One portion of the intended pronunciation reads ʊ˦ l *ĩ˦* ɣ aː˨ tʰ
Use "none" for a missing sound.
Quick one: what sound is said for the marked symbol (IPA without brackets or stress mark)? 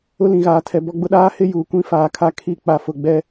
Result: ĩ˨